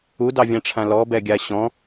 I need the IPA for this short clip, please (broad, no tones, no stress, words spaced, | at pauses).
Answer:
udɑvʲãʈ͡ʂʰã lɔbɛɡʲa ɕɔ̃